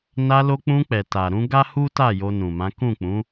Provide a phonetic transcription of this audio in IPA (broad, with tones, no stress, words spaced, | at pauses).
na˧lo˧k͡pũ˧ k͡pɛ˨ta˨ɾũ˧ ɡa˦hu˦ta˦˨ jo˧nũ˨mã˨˦ kũ˦˨k͡pũ˨˦